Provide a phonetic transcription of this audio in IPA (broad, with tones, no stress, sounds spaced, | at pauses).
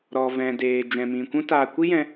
ɾ ɔ˨ v ɛ̃˨ d eː˨ d͡ʒ ɛ̃˨ m ĩ˨ kʷ ũ˦ t aː˧ kʷ i˦ j ɛ̃˧